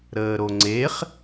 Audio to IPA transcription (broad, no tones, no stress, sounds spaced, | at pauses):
ɾ əː ɾ o ŋ͡ǀ e χ